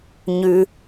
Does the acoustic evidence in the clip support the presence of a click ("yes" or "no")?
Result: no